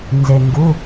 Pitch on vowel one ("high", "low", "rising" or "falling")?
low